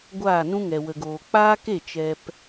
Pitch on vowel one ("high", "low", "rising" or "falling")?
falling